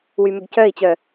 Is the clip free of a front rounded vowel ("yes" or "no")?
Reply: no